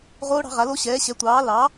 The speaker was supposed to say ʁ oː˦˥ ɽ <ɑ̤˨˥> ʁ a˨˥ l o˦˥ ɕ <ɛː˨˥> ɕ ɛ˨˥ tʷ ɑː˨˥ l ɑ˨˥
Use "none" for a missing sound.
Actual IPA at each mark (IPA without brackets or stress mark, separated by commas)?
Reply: ɑ̤˨˥, ɛː˨˥